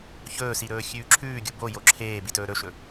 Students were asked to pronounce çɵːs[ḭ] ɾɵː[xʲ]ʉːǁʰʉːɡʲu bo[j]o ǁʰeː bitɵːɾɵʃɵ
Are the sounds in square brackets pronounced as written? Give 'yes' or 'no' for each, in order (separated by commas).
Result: no, yes, yes